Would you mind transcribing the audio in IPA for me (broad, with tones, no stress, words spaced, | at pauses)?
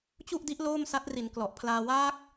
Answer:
t͡ɕu˥˩ʔdi˦˥ʔ loː˥˩msa˦˥t̚ri˩˦n klɔ˨˩ʔpʰlaː˧ waː˦˥k̚